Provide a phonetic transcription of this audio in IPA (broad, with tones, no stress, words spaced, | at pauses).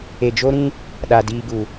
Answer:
e˨d͡ʒo˦ɾĩ˦ | ɗa˨diː˧ɡu˨